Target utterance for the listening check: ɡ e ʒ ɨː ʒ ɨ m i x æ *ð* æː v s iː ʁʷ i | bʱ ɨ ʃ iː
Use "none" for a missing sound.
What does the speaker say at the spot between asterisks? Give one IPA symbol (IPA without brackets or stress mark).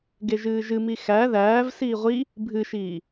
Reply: ð